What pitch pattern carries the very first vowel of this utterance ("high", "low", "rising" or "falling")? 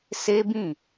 high